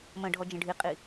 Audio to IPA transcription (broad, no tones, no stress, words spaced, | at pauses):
mə̃ ɖʱɔd͡ʒə̃ɖʱiqʼi